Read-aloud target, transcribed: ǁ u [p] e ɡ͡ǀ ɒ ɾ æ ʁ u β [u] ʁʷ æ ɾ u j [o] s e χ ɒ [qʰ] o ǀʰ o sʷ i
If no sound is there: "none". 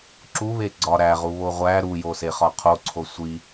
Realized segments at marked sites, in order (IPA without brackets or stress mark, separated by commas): β, o, o, qʰ